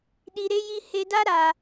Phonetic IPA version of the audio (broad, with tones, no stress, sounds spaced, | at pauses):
ɗ i˧ ɾ e˦ j i˦ h e˧ d a˦ ɾ a˧